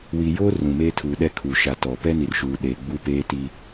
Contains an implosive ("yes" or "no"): yes